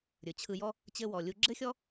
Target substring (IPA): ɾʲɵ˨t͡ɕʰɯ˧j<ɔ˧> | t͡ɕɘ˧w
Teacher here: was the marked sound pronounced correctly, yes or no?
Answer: no